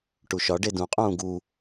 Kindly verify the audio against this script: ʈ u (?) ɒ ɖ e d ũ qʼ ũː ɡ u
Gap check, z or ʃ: ʃ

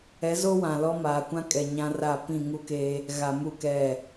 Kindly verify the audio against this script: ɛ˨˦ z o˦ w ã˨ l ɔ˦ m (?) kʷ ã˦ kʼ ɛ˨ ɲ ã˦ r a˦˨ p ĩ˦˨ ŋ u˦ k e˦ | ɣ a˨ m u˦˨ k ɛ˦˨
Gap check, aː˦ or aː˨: aː˨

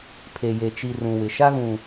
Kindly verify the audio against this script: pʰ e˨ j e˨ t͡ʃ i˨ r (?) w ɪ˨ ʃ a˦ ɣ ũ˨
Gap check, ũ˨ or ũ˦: ũ˨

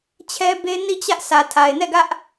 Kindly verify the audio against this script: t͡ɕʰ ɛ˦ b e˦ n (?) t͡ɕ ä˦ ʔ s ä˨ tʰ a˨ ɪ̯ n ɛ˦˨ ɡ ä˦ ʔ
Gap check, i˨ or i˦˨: i˦˨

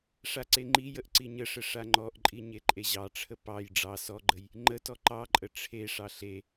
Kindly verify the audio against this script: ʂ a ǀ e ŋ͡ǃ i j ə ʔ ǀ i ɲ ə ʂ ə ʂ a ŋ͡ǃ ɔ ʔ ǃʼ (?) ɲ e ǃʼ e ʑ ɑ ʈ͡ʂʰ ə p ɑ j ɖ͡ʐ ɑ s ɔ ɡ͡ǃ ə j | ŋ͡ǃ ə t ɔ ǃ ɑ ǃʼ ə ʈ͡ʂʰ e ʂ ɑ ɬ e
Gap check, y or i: i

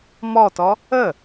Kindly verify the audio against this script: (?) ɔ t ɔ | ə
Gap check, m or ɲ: m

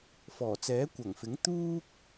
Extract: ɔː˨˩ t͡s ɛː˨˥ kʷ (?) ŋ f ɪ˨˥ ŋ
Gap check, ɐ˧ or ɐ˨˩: ɐ˨˩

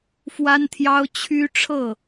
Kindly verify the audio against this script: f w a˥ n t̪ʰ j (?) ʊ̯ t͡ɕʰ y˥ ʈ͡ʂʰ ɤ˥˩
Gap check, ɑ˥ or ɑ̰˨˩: ɑ˥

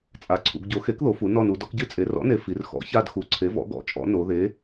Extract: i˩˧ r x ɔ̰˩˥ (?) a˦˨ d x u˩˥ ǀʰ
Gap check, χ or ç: ç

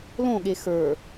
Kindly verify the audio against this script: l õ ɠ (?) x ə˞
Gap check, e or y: e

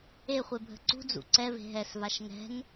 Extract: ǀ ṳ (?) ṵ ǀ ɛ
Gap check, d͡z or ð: d͡z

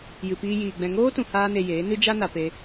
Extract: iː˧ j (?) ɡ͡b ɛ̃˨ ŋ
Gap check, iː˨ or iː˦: iː˨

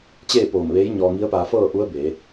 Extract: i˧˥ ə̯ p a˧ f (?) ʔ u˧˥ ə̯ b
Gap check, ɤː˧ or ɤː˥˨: ɤː˥˨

